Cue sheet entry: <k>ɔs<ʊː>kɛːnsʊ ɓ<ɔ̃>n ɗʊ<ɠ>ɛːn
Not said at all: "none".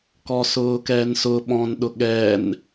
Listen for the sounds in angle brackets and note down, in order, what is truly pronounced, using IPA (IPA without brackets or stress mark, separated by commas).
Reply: k, ʊː, ɔ̃, ɠ